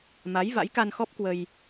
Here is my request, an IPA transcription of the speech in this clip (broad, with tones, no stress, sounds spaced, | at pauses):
m a˨˦ j v a̰˧˥ j k a˧ n x ɔ˦˥ p̚ k w ə˧ j